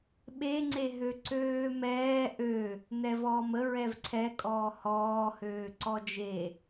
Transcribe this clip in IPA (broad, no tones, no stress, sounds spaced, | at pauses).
ɓ e ŋ͡ǀ e ɦ ø ǀ øː m ɛː ʔ ø | n ɛ v ɔː m ə ɹ ɛ v ǀʰ ɛ kʼ ɔː h ɔː h øː ǀ ɔ d͡ʒ e